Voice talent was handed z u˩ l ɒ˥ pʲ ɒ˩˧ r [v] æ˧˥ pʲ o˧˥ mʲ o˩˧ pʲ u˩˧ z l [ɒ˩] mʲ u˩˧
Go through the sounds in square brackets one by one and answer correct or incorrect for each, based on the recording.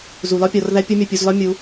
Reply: incorrect: ð, incorrect: ɒ˧˥

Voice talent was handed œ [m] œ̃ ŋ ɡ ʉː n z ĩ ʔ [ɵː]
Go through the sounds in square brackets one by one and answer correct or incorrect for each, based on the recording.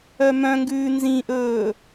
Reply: correct, correct

